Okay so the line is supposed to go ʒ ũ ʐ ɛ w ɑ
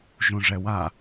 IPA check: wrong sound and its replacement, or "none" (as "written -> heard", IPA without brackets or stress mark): ɑ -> a